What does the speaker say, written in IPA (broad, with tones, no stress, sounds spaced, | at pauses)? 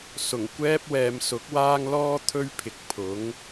s ʊ˨˩ ŋ kʷ ɛː˥ p̚ w ɛː˨˧ m s ʊ˨˥ k̚ w aː˥ ŋ l ɔː˥ t̪ʰ ɵ˥ ɥ pʰ ɪ˨ k̚ pʰ ʊ˨˥ ŋ